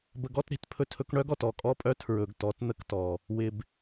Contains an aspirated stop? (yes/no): yes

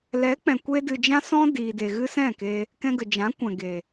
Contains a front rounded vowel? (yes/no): no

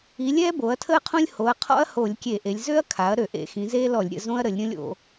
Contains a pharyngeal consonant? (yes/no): no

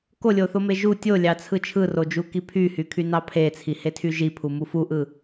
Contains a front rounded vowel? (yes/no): yes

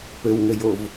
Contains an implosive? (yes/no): no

